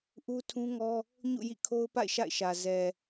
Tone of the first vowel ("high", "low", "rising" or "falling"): high